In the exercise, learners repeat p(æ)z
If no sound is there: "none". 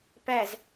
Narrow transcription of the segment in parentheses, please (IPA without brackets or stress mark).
æ